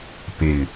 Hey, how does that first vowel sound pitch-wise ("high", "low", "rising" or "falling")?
low